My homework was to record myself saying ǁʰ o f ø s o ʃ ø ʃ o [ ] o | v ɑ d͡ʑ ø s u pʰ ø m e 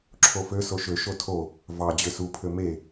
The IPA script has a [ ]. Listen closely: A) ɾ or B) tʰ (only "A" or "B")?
B